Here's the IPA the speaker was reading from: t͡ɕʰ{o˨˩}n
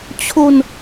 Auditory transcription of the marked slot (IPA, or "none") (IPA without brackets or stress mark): o˧